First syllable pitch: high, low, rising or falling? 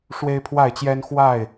high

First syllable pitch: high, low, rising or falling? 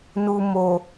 low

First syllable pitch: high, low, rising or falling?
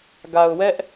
low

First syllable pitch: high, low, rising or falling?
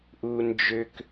low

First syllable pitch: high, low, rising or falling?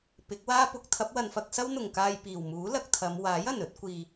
rising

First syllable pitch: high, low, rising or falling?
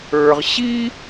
low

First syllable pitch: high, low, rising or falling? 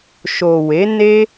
low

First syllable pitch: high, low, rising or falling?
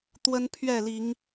high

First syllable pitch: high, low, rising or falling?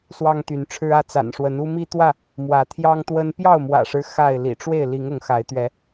high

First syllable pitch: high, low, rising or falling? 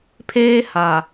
high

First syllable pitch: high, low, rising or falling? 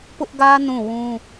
high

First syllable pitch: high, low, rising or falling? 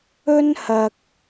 high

